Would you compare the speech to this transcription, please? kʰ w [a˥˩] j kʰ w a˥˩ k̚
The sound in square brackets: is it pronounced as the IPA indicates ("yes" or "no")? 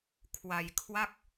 no